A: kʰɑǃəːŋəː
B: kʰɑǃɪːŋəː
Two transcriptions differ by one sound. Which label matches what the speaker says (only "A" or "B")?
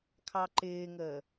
B